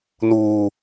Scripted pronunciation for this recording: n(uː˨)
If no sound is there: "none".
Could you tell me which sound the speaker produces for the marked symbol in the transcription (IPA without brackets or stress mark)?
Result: uː˨